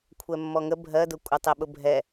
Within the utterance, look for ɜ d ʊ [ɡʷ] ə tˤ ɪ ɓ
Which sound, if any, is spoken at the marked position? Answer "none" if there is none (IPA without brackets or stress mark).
kʷʼ